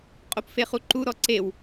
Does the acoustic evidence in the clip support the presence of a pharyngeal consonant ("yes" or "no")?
no